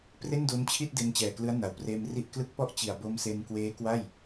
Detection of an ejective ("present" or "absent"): absent